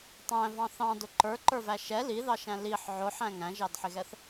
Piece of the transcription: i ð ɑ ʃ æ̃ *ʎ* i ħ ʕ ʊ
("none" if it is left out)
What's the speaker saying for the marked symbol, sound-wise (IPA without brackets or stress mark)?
l